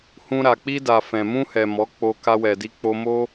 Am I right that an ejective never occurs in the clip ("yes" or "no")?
yes